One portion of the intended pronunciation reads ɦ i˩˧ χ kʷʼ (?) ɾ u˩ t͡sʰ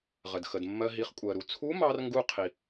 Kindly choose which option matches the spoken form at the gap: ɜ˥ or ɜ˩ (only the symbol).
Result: ɜ˩